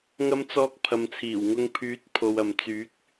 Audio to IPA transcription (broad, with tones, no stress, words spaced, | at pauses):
ŋɐ˧mt͡sɔː˧k̚ pʰɐ˨mt͡sʰiː˨˩wŋʊ˧ŋ pʰyː˨˥t̚pʰo˨wɐ˨m t͡syː˨˥k̚